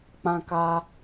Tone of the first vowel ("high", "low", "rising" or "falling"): high